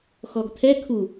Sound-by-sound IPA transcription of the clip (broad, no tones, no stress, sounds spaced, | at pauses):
x ɔ ɡ t̪ʰ ɛ kʰ u